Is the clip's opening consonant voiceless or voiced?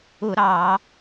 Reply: voiced